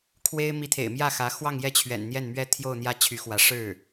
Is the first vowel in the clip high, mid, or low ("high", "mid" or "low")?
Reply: mid